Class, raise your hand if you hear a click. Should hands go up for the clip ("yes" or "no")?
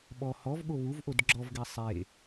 yes